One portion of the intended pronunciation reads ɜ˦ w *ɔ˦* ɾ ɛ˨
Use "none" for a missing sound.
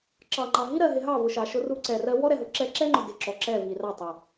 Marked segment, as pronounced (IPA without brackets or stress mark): ɔ˦